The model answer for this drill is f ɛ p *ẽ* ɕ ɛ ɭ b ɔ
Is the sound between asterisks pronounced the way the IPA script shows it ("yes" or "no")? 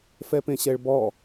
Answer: yes